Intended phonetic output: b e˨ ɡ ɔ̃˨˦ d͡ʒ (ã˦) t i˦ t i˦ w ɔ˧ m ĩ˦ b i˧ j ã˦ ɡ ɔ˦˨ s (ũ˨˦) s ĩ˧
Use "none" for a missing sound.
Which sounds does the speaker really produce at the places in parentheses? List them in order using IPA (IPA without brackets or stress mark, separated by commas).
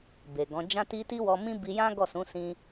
ã˦, ũ˨˦